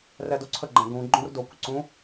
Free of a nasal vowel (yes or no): no